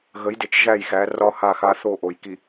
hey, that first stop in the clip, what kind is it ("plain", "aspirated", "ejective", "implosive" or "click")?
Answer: plain